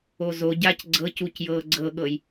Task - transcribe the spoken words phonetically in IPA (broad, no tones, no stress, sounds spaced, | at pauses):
o z o ɟ a c ɡ͡ǀ ɤ c u c j ɤː ɡ͡ǀ ɤ ɠ ɤ j